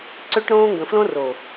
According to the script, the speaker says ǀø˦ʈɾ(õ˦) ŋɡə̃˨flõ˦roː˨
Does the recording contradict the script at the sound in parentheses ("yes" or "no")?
yes